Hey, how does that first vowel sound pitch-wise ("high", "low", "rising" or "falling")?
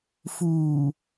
low